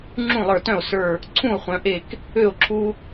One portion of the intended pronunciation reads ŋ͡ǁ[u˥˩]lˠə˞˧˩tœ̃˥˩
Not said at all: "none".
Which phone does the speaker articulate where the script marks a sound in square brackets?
ũ˥˩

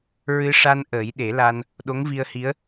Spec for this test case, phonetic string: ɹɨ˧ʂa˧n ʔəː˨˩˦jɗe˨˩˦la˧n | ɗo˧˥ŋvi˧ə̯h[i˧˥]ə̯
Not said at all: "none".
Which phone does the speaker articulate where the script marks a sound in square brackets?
i˧˥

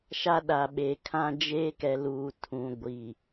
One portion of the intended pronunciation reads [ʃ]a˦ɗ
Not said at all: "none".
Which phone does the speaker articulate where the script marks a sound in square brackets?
ʃ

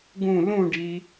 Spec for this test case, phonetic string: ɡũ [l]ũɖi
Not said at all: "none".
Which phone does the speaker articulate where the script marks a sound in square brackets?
l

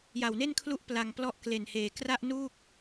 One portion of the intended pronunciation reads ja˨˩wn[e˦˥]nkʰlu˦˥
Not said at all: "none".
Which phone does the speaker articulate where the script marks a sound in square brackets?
e˥˩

